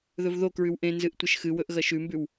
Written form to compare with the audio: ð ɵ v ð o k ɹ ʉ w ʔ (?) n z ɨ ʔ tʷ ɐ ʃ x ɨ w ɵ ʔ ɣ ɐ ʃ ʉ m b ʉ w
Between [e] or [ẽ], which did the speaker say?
ẽ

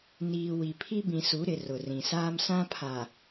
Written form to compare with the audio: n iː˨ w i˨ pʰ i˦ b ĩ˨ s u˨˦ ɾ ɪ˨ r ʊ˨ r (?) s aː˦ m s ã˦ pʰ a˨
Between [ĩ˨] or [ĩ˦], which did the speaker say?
ĩ˨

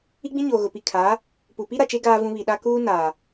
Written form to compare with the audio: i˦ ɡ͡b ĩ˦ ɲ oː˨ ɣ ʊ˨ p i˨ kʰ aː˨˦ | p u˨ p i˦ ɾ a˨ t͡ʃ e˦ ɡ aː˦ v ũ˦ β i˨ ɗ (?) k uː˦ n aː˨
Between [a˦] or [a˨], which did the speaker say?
a˦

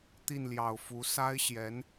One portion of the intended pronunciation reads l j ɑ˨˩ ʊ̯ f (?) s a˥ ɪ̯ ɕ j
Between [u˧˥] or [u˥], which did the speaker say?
u˧˥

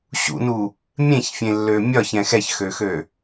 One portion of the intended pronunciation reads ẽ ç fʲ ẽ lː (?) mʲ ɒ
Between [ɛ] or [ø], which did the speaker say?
ø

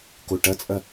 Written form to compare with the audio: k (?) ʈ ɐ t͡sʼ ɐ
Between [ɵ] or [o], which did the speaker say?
o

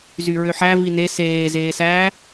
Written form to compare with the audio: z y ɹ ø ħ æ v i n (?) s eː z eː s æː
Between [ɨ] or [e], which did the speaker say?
e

